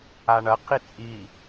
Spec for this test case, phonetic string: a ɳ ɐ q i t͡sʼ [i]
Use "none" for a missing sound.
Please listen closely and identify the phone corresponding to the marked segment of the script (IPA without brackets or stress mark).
i